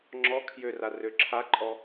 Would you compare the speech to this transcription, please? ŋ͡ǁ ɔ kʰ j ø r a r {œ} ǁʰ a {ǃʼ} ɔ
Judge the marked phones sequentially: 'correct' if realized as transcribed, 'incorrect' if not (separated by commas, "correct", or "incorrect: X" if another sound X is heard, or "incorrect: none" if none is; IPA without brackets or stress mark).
incorrect: ø, correct